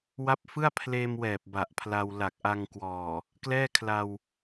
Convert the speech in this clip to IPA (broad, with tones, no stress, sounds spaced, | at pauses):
w a˦˥ p̚ f ɯ˥˩ a̯ pʰ l eː˧ m w ɛː˨˩ p̚ b a˨˩ ʔ pʰ l a˧ w l a˨˩ k̚ ʔ a˧ ŋ k w ɔː˨˩ | k l ɛː˥˩ kʰ l a˧ w